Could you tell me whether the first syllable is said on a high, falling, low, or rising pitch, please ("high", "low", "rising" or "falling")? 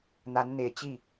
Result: rising